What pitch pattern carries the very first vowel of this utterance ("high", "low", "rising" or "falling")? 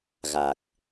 low